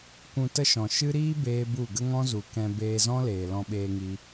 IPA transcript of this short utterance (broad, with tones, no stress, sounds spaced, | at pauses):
kʷ ũ˧ t ə˦ ʃ ɔ̃˨ ʃ ɨ˦ ɾ iː˦ b eː˦ b u˦˨ ɡ ə˦ ŋ ɔ̃˦ z u˨ k ɛ̃˧ b eː˧ z ɔ̃˦ l eː˨ l ɔ̃˧ ɓ eː˧ ŋ i˧